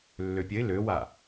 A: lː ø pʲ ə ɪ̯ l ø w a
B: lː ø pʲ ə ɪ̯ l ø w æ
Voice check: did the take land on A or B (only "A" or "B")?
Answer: A